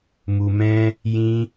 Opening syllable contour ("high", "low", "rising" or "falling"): low